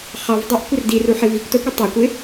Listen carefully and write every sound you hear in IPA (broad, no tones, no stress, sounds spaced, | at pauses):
χ ɑ v dˤ a ʔ kʷ ɪ r d i r u ħ ɪ v i kʷ t ʌ kʷ i tˤ ø kʷ ɪ